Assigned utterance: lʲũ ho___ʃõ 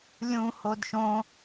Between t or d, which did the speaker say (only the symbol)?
d